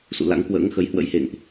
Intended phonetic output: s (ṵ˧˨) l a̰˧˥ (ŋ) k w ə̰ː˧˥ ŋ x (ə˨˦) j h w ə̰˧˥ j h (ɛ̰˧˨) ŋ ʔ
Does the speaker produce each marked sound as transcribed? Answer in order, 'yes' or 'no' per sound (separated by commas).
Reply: yes, yes, yes, no